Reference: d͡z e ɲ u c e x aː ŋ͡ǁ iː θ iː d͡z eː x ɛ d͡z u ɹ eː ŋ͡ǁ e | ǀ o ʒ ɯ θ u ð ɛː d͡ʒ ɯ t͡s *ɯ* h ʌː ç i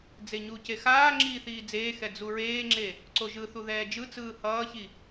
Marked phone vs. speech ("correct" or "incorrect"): incorrect